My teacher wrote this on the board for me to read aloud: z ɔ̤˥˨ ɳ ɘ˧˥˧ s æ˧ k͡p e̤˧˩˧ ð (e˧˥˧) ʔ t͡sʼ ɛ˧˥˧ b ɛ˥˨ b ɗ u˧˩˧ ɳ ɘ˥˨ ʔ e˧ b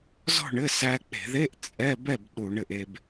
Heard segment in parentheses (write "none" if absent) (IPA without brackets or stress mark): e˧˥˧